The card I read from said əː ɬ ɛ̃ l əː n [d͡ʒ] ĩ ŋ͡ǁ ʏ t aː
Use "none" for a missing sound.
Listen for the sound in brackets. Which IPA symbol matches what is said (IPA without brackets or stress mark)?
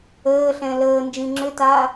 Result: d͡ʒ